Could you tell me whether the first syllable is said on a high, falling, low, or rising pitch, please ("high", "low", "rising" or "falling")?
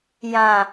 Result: low